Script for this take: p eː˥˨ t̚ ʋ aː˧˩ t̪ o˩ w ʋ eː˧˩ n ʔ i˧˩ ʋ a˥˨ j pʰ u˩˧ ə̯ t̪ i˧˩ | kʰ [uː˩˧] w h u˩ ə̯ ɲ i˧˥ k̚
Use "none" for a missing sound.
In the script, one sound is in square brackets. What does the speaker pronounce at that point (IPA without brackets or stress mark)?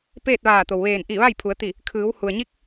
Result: ɯː˩˧